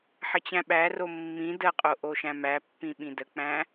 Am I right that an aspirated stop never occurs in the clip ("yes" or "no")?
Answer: yes